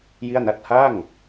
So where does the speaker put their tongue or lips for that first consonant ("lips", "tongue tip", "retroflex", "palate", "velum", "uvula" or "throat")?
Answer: palate